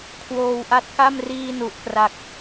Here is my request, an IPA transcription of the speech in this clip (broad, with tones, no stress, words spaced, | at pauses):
kʰwoː˧wʔa˦˥t̚ka˥˩m riː˧ nu˨˩ʔkra˨˩k̚